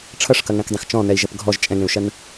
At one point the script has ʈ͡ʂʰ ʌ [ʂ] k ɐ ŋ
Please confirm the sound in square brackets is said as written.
yes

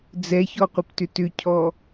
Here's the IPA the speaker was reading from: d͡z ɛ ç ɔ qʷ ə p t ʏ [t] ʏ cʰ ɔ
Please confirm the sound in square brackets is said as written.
yes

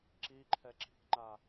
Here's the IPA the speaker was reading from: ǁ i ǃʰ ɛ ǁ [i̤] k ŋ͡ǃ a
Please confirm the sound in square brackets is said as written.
yes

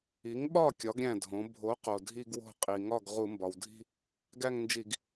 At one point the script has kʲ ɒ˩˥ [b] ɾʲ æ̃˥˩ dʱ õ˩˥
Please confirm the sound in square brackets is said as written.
no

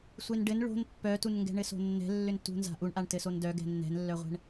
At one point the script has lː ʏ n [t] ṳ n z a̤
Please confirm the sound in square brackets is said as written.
yes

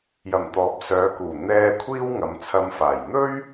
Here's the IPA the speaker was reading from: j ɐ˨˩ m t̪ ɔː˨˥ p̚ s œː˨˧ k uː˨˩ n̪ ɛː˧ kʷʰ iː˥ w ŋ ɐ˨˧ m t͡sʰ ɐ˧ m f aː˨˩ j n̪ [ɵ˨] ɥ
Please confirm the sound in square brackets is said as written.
no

